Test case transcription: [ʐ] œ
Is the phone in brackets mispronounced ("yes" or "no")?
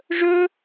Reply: no